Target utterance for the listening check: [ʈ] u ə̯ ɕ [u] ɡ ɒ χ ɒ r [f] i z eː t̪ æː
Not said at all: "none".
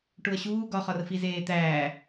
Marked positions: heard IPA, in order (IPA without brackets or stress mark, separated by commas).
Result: ʈ, uː, f